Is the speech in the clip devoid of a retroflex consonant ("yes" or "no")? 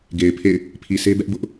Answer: yes